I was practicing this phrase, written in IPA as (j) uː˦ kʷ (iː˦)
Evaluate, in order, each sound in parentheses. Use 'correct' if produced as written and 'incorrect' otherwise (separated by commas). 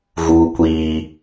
incorrect, correct